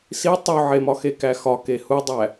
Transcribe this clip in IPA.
s i tˤ u ʕ e m ɒ x e k æ x ɒ k e h u dˤ æ

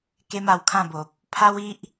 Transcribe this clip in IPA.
k e˦ m a˧ w kʰ ã˥˧ b o˨ p̚ | pʰ a˦ w i˦ ʔ

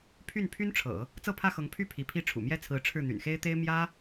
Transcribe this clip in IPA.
pʰ y˥˩ n pʰ y˥ n ʈ͡ʂʰ ɤ̰˨˩˦ | t͡s ɤ˥˧ pʰ ä˥˩ x ɤ˧˥ ŋ pʰ y˥˩ pʰ i˧˥ pʰ i˥ ʈ͡ʂʰ ṵ˨˩ m j ɛ˥˩ t͡sʰ ɹ̩˧˥ ʈ͡ʂʰ ɻ̩˥˩ n̪ y̰˨˩ n x e˥ ɪ̯ t̪ e˥ ɪ̯ m j ä˥

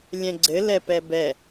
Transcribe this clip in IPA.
lʲ ɛ̃ ɡ͡ǀ ɘ l ɛ p ɛ b ɛ

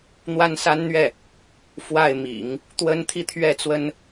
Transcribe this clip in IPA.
n̪ w a˥ n s a˥ n n̪ ɥ ɛ˥˩ | f w a˥˩ ɪ̯ m ḭ˨˩˦ ŋ | t̪ w ə˥ n t̪ʰ i˥ t̪ʰ ɥ ɛ˥˩ t͡s w ə˥ n

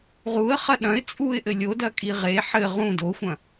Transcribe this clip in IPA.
ʁ u ə̯ χ ɐ ɗ ɐ̃ ɪ̯ t͡sʼ u ɪ̯ ʔ ɘ lʲ o d ɐ kʼ i ʁ e ħ ɘ ʁ ũ d o xʷ ɐ̃

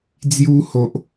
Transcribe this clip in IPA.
d͡z j u˧ h o˨ ʔ

